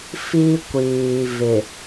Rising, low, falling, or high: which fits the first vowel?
high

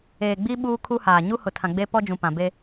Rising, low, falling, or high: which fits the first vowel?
low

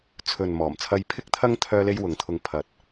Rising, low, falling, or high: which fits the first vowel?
low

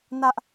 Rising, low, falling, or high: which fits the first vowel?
high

